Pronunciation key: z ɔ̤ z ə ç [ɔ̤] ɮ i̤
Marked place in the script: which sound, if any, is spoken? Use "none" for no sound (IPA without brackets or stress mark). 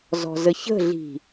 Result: ə̤